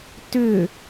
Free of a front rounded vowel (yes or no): no